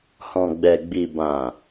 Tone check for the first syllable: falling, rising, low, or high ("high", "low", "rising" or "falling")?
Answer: low